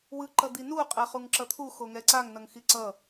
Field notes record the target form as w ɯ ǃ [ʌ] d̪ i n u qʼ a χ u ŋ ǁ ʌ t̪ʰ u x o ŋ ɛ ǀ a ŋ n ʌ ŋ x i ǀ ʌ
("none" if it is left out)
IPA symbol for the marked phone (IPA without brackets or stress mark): ʌ